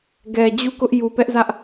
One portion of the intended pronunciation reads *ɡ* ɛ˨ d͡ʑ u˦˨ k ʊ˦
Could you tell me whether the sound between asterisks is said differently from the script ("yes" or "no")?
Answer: no